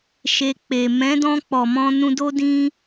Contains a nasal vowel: yes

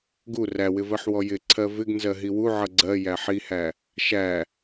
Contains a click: yes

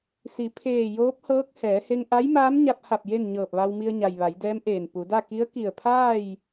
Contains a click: no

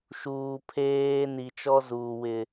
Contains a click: no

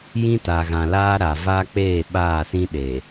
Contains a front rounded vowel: no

